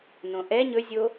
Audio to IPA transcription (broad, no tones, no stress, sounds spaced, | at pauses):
n õ ʔ ɛ ɲ ɵ zʲ o